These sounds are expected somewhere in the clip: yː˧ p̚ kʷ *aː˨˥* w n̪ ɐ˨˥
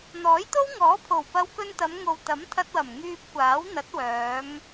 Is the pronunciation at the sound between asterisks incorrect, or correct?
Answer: correct